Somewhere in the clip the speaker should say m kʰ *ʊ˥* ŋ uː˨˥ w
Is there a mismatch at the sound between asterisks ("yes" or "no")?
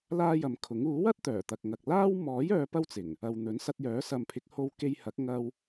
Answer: yes